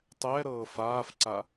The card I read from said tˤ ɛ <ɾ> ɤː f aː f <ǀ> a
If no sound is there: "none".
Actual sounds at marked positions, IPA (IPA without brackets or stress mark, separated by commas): ɾ, ǀ